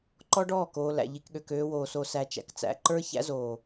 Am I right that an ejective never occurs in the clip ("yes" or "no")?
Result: yes